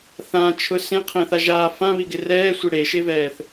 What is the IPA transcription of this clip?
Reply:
θ ã t͡ʃʰ ʊ s ẽ qʰ ẽ θ a ʒ aː f ã β i ɡ ɪ r ɛː sʷ i ɽ e ʃ e v ɛː θ

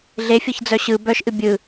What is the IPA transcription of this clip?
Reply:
ɮ e fʲ ɤ ç d͡z œ ɕ ɯ b œ ʃ ʔ ɨ bʲ ɯ

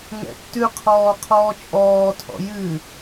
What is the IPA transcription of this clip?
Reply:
ŋ ɛ̰ tː ʉ qʰ ɔː qʰ ɔː t͡ʃʼ ɔː tʰ ɔ̰ j ɨ

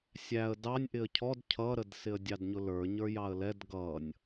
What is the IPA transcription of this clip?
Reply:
sʲ æ ə̯ d ɑ nʲ ʔ ɪ ə̯ cʰ ɔ d cʰ ʌ ɾ ə d s ɪ ə̯ dʲ ɑ d ɲ ʊ l ə˞ ɲ ə˞ j ɑ ə̯ l ɛ d ɡ ʌ nʲ

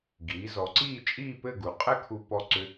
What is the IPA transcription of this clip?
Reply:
ɡ iː˩˧ z ɔ˩˧ ǀ iː˥˧ t͡ʃʼ iː˥˧ p ɘ˥˧ ɡ u˩˧ qʼ ɛ˥ kʰ u˧ p ɔ˧ ǀ ʏ˧

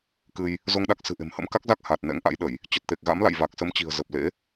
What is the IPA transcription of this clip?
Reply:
k ɨ˧ j | z o˧ ŋ ɗ a˦˥ k̚ s ɨ̤˨˩ ʔ e̤˨˩ m h ə̰˧˥ m k a˦˥ k̚ z a˦˥ k̚ h aː˨˩ t̚ n ɛ̰˧˥ ŋ ʔ a̰˧˥ j ɗ ə˧˩˨ j | t͡ɕ ə˨˩ t̚ t̪ e˨˩ k̚ ɣ a̰˧˥ m l a̰˧˨ j v a˨˩ k̚ s ə˨˦ m t͡ɕ i̤˨˩ ə̯ z ə˨˩ p̚ l ḛ˧˥

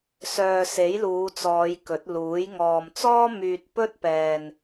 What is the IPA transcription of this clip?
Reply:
s œː˨ s e˨˥ j l uː˨˧ t͡s ɔː˨˧ j k ɵ˨˥ t̚ l uː˨˥ j ŋ ɔː˨ m t͡s ɔː˥ m yː˧ t̚ p ɵ˥ t̚ p ɛː˧ n

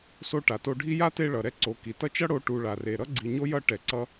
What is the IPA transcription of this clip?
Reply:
s o˥ ʈ a˨ t o˦ ɖʱ i˦ j a˥ t e˦ ɭ ʌ˩ ɾ ɛ˦ ǀ o˨ k i˩ t ʌ˦ t͡ʃ ʌ˥ ɽ o˦ ʈ u˨ ɭ a˩ r e˩ ɾ ʌ˥ ɡ͡ǀ i˨ ɲ o˥ j ʌ˦ ʈ ɛ˨ ǀ ʌ˥

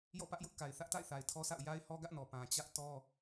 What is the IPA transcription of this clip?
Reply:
j ɔ̰˦˨ p ä˦ ʔ j ʊ˦ ʔ k a˨ ɪ̯ θ ä˦ ʔ t a̰˦˨ ɪ̯ θ a˨ ɪ̯ tʰ ɔ˦ sʰ a̰˦˨ ʊ̯ j a˦ ɪ̯ h ɔ˦ ɡ ä˦ ʔ n ɔ˨ p ã˨ t͡ɕ ä˦ ʔ t ɔ˦

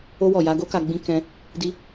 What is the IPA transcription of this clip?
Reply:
o˧ w ɔ˨ j a˧ ɡ o˦ k a˧ ɡ͡b ĩ˧ k ɛ̃˧ | d i˧

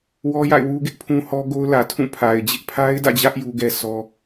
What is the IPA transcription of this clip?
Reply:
w ɔ˦ j a̰˦˨ ɪ̯ w u˦ ɡ ɪ˦ ʔ pʰ ũ˦ h ɔ˦ ɡ o˦ ʊ̯ l ä˨ tʰ ũ˦˨ pʰ a˨ ɪ̯ d͡ʑ ɪ˦ ʔ pʰ a˦ ɪ̯ d ä̰˦˨ d͡ʑ ä˦ ʔ j u˦ ɡ ɛ˦ sʰ ɔ˦

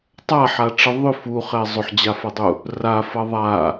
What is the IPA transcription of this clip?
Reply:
tˤ a ħ a ʈ͡ʂ ə ðˤ ʏ f u χ ɛ zˤ ʏ ħ d͡ʑ a f ʌ dˤ u | r a f ʌ ðˤ a

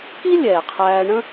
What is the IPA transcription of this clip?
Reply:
k i˥ lʲ ɛː˩ qʰ æː˧ ɳ ə̃˥

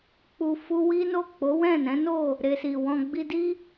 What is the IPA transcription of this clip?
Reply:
k͡p u˧ f u˦ w i˦ n o˦˨ k͡p o˨˦ w ɛ̃˦˨ n ɛ̃˨˦ n o˦˨ | ɾ e˧ s i˨ w ɔ̃˧ ɡ͡b i˧ d i˦

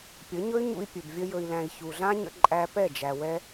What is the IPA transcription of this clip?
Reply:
pʲ ə˨˦ ɲ ɵ˦ y̯ ɲ ṵ˧ i̯ pʲ ɵ˨ b vʲ ə˧ j ɵ˨ i̯ l æ̃˨ i̯ ç u˨ ɮ ã˦ ɲ ə̰˧ ǃʼ æ˧ p ɛ˦˨ d͡ʒ æ˨ w ɛ˧

